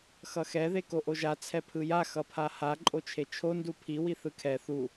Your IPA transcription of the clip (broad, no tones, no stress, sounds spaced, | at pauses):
x ʌ x ɛ ð e k o ʔ o ʒ a t͡sʰ ɛ pʰ ɯ j a x ʌ pʰ a h a ǃʼ o t͡ʃʰ e t͡ʃʰ o n d u pʰ i w i θ ɯ kʰ ɛ θ u